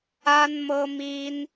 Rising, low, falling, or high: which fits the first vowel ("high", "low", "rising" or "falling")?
high